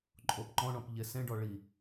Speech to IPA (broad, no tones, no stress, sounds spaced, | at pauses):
ǃʼ o p ǃ ɔ̃ ɳ ɔ̃ p ʎ e s ẽ ɖ ɔ ɭ i